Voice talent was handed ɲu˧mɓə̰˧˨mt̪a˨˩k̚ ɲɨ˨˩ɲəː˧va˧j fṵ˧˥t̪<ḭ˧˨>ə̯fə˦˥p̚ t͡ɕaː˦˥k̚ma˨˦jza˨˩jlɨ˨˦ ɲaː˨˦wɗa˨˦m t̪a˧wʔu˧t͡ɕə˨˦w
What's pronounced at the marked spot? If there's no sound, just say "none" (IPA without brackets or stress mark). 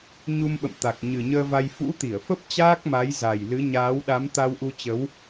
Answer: i˧˩